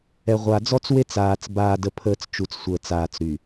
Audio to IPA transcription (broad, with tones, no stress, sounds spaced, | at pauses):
ɛ˨ ʁʷ a˨ d͡z ɔ˦ t͡s w e˦ t͡s aː˨ t͡s b aː˨ d ə˨ pʰ əː˨ t͡s t͡ʃ u˨ t͡s sʷ əː˨ t͡s aː˨ t͡s ɾ y˨